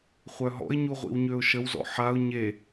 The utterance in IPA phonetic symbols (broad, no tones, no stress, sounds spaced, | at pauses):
χʷ œ ɦ ɔ̰ ɪ̯ ɲ u ʁʷ ḭ w ɲ ø ʊ̯ ʃ ə w z ɔ̰ ħ a ʊ̯ ɲ e